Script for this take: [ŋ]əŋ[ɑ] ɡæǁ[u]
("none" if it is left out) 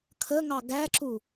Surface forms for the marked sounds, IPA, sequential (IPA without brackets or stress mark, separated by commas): kʰ, ɑ, u